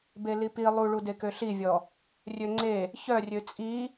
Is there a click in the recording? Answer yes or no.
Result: yes